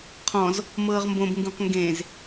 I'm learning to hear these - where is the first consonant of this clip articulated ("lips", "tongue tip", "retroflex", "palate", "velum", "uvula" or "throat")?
uvula